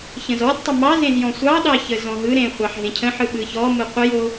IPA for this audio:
ç ə̃ z ɔ d tˤ ɵ m ɑ z ẽ z j ɔ̃ sʷ ɑ ɗ ɑ ç ə z ɔ̃ ɦ ɯ ɾ ẽ χʷ ɑ ħ ɦ ẽ cʰ ə̃ ħ ɯ ɓ ɯ ç ɔ m ɯ qʷ ə j o

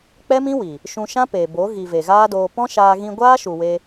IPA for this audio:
k͡p ɛ˦ m ĩ˦ w i˨ | ʃ ũ˧ ʃ ã˦ p eː˨ b o˨˦ ɣ i˨ v e˨ ɣ aː˦ d oː˧ p ɔ̃˦ ʃ aː˧ ɣ ĩ˧ ɡʷ aː˦ ʃ u˨ w e˧

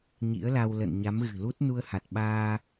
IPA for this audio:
ɲ ḭ˧˥ ə̯ l a˧ w l ə̰˧˨ n ɲ a˨˦ m ɣ ɨ̤˨˩ l u˦˥ t̚ n u˧ ə̯ h a˨˩ t̚ ɓ aː˧

